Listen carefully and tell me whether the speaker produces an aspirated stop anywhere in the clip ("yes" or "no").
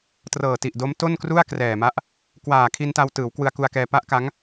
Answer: yes